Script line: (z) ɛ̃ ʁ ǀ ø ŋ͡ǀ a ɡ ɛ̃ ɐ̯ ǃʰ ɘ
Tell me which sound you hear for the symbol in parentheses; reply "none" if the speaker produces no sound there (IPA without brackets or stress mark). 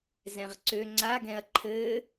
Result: z